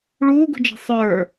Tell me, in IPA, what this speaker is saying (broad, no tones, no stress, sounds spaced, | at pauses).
ɭ uː ɡ ṳ d͡ʒ ɛ̤ sˤ ə˞